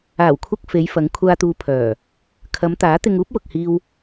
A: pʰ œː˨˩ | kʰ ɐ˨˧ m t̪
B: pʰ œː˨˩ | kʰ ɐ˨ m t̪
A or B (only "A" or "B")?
A